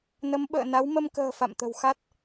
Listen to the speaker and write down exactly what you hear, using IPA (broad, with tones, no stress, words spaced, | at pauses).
nə˨˦mɓə̰ː˧˨na˨˦w mə˧mkə̤ː˨˩ fa̰˧˨mt̪ə̤˨˩wxa˦˥t̚